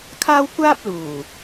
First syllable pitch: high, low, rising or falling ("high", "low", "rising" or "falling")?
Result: high